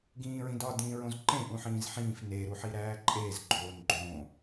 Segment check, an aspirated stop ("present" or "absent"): absent